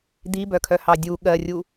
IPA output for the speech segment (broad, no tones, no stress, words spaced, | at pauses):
d̪ibœkʰœhɑ dʲu ɠɜrʲu